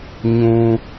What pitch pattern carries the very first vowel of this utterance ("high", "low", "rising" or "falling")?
low